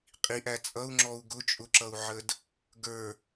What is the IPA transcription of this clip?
qʼiʔæ t͡sʼʌu̯ŋ͡ǁɔu̯ ɡʊ t͡ʃʼʊǁʌu̯ʕəd | ɡə˞

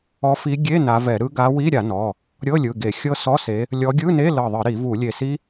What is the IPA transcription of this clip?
ɔ˨˦fi˨˦ ɡʲe˧˥˧ na˨˦vɛ˧˩˧ɾɯ˦˥ ɡa˨˦wi˧˥˧ ɾʲa˧˩˧nɔ˩˧˩ | ɾʲɤ˧˥˧lʲɯ˩˧˩ ɡe˧˩˧xʲɤ˦˥ sɔ˧˥˧se˨˦ | lʲɔ˨˦ɡʲɯ˧˥˧ne˧˥˧ lɤ˧˩ðˤɯ˧˩˧ ɾi˧˩˧vu˧˩˧ lʲe˧˩si˦˥

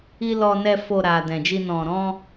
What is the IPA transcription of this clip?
i˧ lɔ˧nɛ˧ fo˨ ɾa˨ dɛ̃˨d͡ʒi˧ nɔ̃˨ɾɔ̃˧

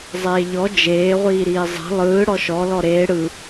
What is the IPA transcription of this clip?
zˤeːʎɔ d͡ʒeː ʁʷiːɾiːzˤe̤ lˠɯː ɽɔʃɔ lɔɾeː ɽɯ

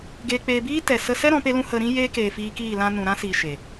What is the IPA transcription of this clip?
ɡeː˧k͡peː˧ biː˦ tɛ˨ sə˧sɛ˦ ɾɔ̃˨˦pe˦lũ˦ hə˧ɾĩ˦ jeː˦keː˨fiː˧kiː˦˨ lã˧nũ˨ɾã˦siː˨ ʃe˨

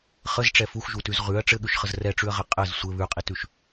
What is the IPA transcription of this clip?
χəzʈ͡ʂɛ fuxʒutʉz ʁʉɐ̯ ʈ͡ʂɘɠʉʃχəz rɛʈ͡ʂʉɐ̯ʁɘ qʼɘz sʷɘ βʉqʼitʉʃ

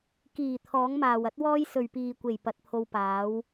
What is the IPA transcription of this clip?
kiː˨˩ t̪ʰɔː˨˥ŋmaː˨wɐ˥t̚wɔː˥j sɵ˨ɥpiː˨kʷe˨˩j pɐ˨˥t̚pʰo˧wpaː˨˥w

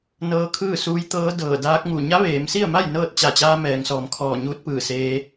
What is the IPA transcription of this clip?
nɤː˧˥kʰɯː˥˨suː˧˥j t̪ɤː˧˥ dɤː˧˩ daː˧˥k̚ŋu˧˩ ɲa˧˥ʋeː˩˧msi˥˨ə̯ma˥˨j nɤː˥˨t̚ t͡ɕa˧˩t͡ɕaː˧ mɛː˩˧ŋsɔː˩˧mkʰɔː˧˩ɲuː˧˥t̚ pɯː˧˩seː˧

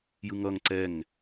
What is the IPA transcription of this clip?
jɯŋʌŋ ǀɛŋ

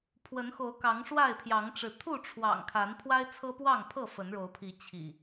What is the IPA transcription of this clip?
pʰwə˨˦nxo˨˦ʊ̯ kɑ˨˦ŋʂwa˥˨ɪ̯pʰjɑ˨˦ŋʈ͡ʂɻ̩˨˦ t̪ʰu˥˨ʈ͡ʂʰwɑ̰˨˩ŋkʰa˨˦n pʰwa˦ɪ̯t͡sʰɤ˦pwɑ˥˨ŋpʰɤ˥˨ fə˨˦nɻo˨˦ʊ̯pʰi˨˦ t͡ɕʰḭ˨˩

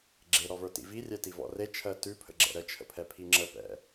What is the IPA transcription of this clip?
ɡ͡ǁeɾɔvə˞tḭ virʲɛtivɔ̰ ret͡ʃʰɜ tʉpʰə̰ɡ͡ǁɛ̰ ɾət͡ʃʰə̰pʰɛpʰi ŋ͡ǁəpɛ̰

